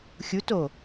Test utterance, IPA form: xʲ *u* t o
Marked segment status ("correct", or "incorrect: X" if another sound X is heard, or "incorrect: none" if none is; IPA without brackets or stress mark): correct